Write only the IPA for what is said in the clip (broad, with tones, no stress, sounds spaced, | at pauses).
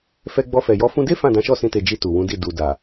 f ɛ˧ ɡ͡b ɔ˧ f ɛ˨ j ɔ˨˦ f ũ˧ d e˦ f ã˦˨ d ã˨˦ ʃ ɔ˦˨ s ĩ˧ t e˨ d͡ʒ i˧ t u˨ w ũ˨˦ d i˦˨ d u˨ d a˨